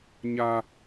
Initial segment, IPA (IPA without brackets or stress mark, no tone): ɲ